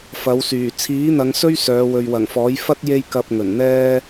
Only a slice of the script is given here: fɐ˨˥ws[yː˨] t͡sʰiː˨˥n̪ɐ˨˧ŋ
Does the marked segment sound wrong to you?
yes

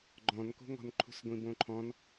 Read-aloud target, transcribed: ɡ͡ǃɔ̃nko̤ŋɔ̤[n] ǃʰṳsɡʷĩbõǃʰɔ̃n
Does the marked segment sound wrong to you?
no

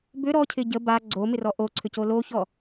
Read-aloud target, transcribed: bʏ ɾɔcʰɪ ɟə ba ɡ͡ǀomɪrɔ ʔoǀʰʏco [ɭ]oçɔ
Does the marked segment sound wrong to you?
yes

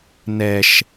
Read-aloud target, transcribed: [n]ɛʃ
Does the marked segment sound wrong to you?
no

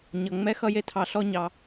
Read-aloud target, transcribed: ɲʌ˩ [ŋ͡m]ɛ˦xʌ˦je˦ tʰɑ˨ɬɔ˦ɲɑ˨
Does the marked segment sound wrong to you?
no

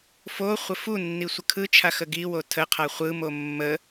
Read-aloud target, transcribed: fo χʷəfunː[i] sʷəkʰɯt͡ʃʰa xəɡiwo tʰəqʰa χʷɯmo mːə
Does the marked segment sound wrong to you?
no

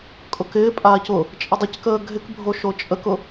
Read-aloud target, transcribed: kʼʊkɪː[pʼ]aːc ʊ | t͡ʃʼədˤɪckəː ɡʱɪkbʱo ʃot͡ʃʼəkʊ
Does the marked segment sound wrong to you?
no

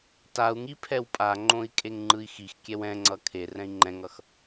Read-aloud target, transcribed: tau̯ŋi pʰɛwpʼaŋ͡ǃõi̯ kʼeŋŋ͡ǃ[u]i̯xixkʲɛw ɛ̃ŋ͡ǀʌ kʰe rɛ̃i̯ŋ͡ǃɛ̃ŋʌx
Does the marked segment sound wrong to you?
yes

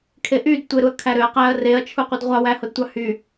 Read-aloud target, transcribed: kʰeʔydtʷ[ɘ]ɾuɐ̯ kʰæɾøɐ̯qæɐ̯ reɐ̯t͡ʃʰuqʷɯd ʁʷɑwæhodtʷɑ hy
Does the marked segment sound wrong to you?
yes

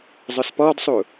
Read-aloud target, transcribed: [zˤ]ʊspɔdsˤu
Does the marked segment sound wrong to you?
no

